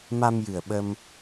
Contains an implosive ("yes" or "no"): yes